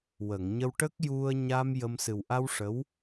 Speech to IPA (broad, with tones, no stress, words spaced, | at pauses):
wə˨˩˨ŋɲə˧w ʈə˦˥k̚ju˧ə̯ ɲa˧m jə˧m sɨ˨˩wʔa˧w ʂə˧˥w